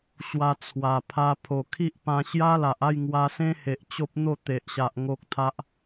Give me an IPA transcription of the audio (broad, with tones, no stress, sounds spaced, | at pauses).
ɕ w a˧ t͡sʰ w a˨˩ pʰ a˧ pʰ o˨˩ kʰ i˦ ʔ p ã˧ ɕ j a˦ l a˨ ʔ a˥˧ j ŋ w a˧ s ẽ˦ h e˨ ʔ t͡ɕ o˦ p̚ n̪ o˥˧ t̪ e˨ ʔ ɕ a˨ ʔ ŋ o˦ k̚ t̪ʰ a˦ ʔ